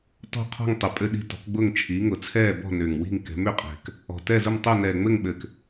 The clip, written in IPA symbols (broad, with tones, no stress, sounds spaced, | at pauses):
t ɔ̤˦˨ qʰ ɔ̤˦˨ ŋ tˤ ɘ˨˩ pʼ ɘ˦˨ ɗ i̤˦˨ t ɔ̤˨˦ k ɡ͡b ʊː˦˨ ŋ t͡ʃʰ iː˨˦ ŋ ʊ˨˩ t͡sʰ ɛː˦˨ b ɔ̤˦˨ n ʏː˨˩ ŋ w i̤˦˨ ŋ k ɛ̤˨˦ m ʏ˨˩ qʼ ɛ̤˨˩ k | ɔ̤˨˩ t ɛ˦˨ z ʊ˦˨ m tˤ ʊː˦˨ n ɛː˨˩ ŋ͡m ɘ˦˨ ŋ ɓ ɘ˨˩ k